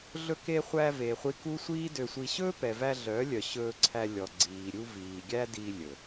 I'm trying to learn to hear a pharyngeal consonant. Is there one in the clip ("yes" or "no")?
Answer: no